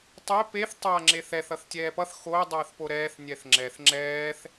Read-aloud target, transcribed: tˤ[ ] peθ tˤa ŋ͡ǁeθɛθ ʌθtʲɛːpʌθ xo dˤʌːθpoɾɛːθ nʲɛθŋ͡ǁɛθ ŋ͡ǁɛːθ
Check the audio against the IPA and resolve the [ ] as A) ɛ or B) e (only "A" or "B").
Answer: A